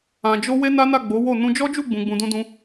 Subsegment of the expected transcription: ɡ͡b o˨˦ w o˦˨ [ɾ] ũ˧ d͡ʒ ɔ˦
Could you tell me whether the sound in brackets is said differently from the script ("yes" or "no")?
yes